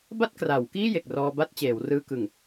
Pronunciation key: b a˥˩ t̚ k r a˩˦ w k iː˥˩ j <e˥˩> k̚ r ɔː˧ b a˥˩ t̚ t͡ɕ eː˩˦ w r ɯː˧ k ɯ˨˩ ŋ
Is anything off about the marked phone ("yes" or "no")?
yes